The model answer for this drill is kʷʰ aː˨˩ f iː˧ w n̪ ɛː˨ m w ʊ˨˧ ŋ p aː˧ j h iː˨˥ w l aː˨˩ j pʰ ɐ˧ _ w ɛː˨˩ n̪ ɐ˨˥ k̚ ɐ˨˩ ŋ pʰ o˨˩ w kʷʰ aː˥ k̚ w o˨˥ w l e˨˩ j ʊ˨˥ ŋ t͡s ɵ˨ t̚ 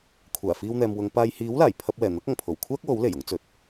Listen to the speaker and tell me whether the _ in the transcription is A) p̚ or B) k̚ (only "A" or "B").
A